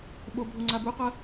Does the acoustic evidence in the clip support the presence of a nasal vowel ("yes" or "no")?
no